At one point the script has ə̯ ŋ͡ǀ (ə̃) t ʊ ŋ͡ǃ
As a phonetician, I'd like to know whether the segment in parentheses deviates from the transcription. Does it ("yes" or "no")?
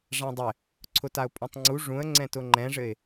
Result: yes